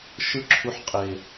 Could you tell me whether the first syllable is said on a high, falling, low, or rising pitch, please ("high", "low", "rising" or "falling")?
falling